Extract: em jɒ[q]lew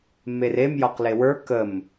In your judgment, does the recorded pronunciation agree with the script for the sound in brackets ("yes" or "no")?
yes